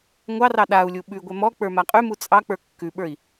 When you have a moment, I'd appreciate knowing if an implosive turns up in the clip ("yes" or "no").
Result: yes